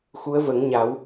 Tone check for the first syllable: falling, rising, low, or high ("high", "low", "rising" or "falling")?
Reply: rising